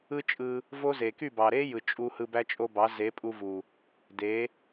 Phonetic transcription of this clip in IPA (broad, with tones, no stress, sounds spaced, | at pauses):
ɯ˦ t͡ʃʼ ɯ˧ | v o˦ z e˨ k y˦˨ b ɑ˨ ɾ e˦ j ɯ˨ t͡ʃʼ u˧ h ɯ˧ b æ˦ t͡ʃʼ o˦ b ɑ˨˦ z e˨˦ pʼ u˧ v u˨ | d e˨˦